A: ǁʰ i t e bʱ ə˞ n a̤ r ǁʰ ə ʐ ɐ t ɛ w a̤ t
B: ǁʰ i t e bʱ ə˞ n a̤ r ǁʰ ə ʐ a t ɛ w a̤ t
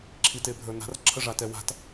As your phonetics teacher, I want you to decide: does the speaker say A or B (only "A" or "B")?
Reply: B